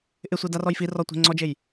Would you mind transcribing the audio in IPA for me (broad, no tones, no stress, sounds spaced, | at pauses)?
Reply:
ʔ ɪ sʷ i d a r ɔ j f i r ɔ tʷ e̤ ŋ͡ǀ ɔ d͡ʒ e j